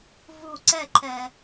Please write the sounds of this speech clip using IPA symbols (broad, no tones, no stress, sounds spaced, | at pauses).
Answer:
v u ǀ ɛ ǃʰ ɛ